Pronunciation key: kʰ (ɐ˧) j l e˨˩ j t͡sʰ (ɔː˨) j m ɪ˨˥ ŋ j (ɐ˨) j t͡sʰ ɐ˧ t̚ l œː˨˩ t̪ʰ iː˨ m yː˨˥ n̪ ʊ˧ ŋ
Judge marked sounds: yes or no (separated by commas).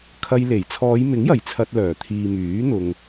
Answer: yes, no, no